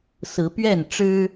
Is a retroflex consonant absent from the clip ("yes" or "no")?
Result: no